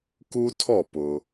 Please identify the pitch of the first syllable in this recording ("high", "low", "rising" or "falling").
high